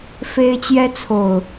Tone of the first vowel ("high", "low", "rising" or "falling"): high